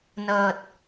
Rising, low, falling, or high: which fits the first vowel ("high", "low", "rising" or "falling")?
low